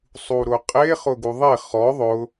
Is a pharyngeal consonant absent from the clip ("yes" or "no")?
yes